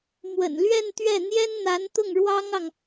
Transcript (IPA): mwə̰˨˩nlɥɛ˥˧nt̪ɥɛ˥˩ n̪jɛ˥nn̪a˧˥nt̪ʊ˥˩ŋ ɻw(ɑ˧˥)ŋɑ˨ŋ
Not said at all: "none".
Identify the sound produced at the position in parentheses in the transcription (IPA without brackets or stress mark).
ɑ˥